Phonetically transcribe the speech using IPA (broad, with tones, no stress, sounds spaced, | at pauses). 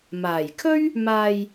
m aː˨˩ j kʰ ɵ˥ ɥ | m aː˨ j